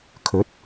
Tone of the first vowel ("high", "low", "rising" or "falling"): rising